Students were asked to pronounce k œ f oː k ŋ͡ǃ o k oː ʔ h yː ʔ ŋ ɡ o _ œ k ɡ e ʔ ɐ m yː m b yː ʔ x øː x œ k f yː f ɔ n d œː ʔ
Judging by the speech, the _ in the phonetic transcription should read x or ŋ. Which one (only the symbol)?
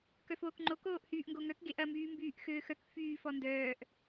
ŋ